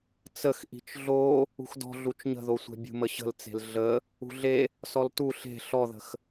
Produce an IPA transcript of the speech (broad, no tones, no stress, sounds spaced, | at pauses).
t͡s ə x ʔ i̤ t͡ʃ ɮ o | ṳ x d ɔ̤ ɮ u t͡ʃ ɲ ə̤ ð o sʷ e̤ bʲ ṳ m ə ɕ ə̤ l t͡s e̤ l ɮ ə | ṳ ɮ e | s ɔ l t u ɬ e̤ ɬ ɔ ð ə̤ x